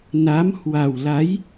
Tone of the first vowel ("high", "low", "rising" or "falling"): rising